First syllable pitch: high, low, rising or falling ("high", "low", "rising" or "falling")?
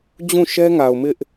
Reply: falling